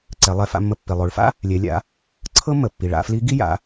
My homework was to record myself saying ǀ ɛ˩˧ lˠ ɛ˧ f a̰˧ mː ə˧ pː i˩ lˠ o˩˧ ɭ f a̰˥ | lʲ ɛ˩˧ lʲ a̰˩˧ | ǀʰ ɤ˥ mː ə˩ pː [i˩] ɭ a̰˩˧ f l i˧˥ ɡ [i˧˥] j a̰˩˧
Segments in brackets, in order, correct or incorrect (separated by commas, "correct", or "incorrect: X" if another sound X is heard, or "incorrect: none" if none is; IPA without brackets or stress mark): correct, incorrect: i˥